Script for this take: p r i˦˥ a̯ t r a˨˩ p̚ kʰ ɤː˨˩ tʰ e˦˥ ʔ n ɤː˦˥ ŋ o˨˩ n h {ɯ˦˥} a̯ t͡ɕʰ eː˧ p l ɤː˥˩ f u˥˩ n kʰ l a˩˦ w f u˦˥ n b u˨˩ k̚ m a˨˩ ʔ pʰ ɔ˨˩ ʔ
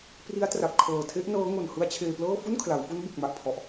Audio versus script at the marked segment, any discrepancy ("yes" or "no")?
no